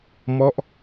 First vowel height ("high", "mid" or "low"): mid